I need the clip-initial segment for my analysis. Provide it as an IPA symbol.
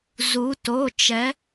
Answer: z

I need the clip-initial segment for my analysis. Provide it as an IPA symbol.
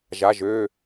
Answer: ʒ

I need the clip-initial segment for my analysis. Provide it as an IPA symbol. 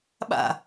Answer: ɓ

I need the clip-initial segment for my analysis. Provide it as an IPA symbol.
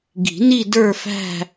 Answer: ɡ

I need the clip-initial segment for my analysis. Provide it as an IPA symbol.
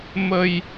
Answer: m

